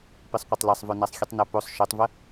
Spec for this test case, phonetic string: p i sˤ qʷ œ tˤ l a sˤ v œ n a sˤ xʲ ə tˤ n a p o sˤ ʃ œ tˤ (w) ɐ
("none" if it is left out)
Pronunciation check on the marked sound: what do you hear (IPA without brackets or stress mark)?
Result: v